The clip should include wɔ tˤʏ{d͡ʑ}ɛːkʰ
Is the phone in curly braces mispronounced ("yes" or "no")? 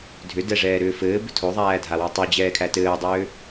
no